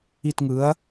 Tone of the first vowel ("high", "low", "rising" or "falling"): falling